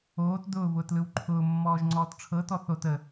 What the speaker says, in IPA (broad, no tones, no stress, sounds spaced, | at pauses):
oː t d ʊː v ʊː t l ɯ w ǃʰ ʊː mː ɔː ʒ ŋ͡ǀ ɔː t ʈ͡ʂʰ ɤ t ɔ θ o t ə